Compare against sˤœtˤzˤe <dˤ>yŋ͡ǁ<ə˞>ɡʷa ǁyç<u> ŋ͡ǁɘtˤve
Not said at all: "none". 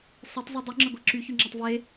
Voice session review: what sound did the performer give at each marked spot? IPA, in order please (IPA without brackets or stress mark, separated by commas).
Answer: dˤ, ə, y